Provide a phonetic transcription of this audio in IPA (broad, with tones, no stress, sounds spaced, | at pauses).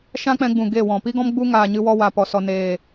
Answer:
ʃ ã˦ k͡p ɛ̃˧ ɡ͡b ũ˨ ɡ eː˦˨ w ɔ̃˨ p i˦ ɡ ɔ̃˦ m ɡ͡b u˦ ŋ aː˨ ɲ ɨ˧ w ɔ˧ w a˨ p ɔ˨ s ɔ˨ n eː˨